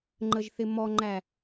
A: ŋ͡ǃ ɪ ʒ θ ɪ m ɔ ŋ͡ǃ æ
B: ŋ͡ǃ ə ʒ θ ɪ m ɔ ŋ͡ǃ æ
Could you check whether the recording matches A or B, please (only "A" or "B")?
B